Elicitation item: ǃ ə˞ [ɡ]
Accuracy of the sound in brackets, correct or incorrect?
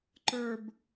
incorrect